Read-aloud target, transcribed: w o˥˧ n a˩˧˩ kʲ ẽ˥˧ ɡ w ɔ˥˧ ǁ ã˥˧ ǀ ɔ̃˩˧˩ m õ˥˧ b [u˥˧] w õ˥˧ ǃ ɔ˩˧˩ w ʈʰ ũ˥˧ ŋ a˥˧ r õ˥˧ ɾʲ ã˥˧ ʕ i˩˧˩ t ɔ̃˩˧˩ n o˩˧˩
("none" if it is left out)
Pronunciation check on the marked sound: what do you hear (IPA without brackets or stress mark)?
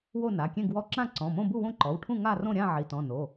u˥˧